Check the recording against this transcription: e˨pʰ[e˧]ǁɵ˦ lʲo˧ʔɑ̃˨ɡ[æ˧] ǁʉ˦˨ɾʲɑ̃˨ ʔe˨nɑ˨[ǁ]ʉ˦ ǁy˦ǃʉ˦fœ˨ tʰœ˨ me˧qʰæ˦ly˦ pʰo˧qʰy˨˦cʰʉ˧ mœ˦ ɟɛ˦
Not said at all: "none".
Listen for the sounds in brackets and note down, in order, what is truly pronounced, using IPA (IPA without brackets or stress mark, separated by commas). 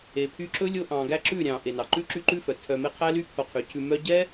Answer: y˧, æ˧, ǃ